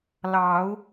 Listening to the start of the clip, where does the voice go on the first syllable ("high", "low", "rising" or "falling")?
rising